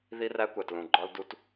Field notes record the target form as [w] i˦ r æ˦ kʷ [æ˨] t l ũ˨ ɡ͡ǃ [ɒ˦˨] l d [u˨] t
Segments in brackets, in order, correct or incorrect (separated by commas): incorrect, correct, incorrect, incorrect